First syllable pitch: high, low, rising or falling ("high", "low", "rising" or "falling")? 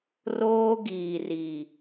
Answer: high